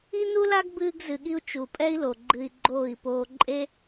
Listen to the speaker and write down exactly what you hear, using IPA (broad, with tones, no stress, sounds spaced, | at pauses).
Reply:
i˦ n u˦ l a˦ ɡ b ɨː˧ ɡ z ɨ˨ ɠ i˧ u̯ t͡ʃ u˨ pʼ ɛ˦ i̯ l o˨ ɡ͡ǃ ɨ˧ i̯ ɡ͡ǃ oː˦˨ i̯ p oː˦ ǃʼ e˦